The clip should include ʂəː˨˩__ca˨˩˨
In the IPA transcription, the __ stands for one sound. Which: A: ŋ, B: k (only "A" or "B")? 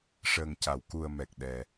A